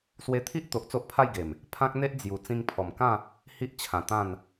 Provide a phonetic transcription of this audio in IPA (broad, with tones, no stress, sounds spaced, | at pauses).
s w e˦ t̪ʰ i˦ ʔ t̪ o˨ ʔ t͡s o˦ ʔ pʰ a˥˧ j ɡ e˨˩ m | pʰ ã˦ k̚ n̪ e˦ ʔ d͡z j u˨˩ t͡s ĩ˧ ŋ pʰ ɔ˨˩ m k ã˥˧ | h i˦ ʔ t͡ɕʰ ã˨˩ t̪ ã˥˧ n